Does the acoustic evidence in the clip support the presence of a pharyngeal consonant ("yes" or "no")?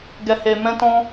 no